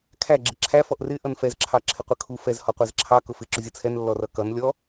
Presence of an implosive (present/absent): absent